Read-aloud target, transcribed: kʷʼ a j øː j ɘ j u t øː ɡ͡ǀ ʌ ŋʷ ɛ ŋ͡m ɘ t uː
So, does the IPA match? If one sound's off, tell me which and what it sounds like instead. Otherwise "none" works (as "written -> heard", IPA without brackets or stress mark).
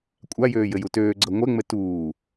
none